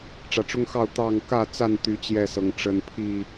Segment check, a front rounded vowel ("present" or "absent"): present